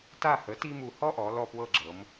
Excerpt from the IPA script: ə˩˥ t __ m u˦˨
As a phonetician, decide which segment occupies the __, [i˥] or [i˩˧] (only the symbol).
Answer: i˥